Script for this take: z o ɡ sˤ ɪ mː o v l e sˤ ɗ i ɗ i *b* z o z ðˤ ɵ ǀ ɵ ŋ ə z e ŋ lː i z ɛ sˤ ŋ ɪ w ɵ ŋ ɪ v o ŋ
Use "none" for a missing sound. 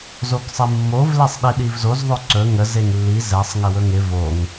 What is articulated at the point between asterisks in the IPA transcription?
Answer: v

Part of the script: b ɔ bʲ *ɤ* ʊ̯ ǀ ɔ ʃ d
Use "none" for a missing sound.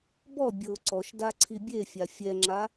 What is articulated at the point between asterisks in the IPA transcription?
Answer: ɤ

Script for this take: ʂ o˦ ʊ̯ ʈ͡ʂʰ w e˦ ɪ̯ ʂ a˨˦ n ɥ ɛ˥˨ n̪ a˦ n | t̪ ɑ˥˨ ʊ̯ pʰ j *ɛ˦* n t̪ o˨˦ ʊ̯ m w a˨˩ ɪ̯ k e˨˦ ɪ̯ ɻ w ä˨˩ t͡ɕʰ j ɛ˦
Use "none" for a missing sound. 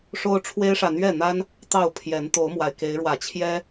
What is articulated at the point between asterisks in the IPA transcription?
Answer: ɛ˨˦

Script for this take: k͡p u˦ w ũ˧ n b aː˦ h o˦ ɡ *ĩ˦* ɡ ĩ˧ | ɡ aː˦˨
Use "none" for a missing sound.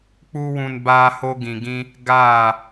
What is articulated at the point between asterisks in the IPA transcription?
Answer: ĩ˨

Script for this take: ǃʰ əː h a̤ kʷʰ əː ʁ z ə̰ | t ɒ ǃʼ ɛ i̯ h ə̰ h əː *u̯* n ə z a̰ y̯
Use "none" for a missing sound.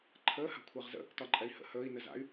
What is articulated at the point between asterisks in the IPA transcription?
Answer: i̯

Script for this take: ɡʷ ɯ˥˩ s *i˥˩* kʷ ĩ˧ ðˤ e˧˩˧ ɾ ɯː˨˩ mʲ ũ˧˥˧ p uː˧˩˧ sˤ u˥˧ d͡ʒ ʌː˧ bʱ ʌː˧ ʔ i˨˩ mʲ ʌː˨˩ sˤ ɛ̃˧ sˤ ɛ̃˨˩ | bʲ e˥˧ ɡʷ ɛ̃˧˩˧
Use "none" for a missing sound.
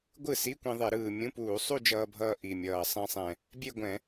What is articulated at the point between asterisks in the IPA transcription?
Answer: i˧˥˧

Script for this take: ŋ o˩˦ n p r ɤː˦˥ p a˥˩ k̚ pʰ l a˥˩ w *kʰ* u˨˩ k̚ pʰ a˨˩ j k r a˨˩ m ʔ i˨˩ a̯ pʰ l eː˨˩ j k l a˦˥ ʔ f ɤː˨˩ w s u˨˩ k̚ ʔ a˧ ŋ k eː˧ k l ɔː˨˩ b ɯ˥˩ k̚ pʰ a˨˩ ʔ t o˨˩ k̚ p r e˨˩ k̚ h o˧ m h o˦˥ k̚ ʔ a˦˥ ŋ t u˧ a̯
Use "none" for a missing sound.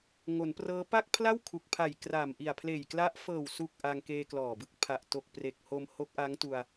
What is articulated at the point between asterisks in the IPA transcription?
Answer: kʰ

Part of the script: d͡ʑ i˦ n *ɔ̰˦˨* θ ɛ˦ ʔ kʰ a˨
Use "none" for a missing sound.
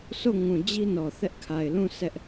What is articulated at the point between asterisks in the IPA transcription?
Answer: ɔ˨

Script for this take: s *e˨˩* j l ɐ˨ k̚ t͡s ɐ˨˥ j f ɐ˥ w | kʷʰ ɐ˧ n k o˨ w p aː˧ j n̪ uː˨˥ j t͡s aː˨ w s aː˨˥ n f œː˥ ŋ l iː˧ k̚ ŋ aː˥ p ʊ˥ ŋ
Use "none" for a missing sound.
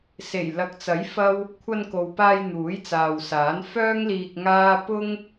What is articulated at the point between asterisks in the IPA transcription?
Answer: e˨˩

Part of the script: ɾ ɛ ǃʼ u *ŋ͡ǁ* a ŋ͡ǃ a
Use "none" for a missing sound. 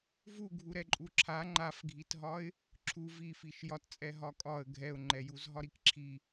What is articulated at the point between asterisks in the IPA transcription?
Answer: ǁʰ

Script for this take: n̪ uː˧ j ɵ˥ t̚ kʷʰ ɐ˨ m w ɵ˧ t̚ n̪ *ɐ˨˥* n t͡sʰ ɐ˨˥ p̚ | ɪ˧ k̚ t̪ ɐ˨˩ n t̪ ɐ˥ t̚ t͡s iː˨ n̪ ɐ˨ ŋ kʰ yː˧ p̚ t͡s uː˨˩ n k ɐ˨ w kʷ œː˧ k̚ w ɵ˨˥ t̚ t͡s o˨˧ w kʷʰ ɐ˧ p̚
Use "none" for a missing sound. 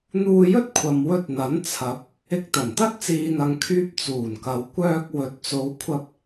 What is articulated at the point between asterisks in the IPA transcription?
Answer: ɐ˨˥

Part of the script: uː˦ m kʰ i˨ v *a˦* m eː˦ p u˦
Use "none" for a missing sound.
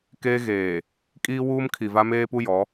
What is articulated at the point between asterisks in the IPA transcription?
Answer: a˦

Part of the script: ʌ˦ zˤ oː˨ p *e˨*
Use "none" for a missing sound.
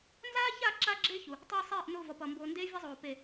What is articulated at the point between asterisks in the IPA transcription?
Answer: e˨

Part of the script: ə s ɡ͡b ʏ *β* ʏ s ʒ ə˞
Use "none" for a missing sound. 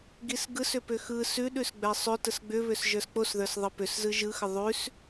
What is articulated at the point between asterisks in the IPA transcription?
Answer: β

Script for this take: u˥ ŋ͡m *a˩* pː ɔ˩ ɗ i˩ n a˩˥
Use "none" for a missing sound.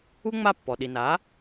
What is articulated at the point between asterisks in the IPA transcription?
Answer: a˥˩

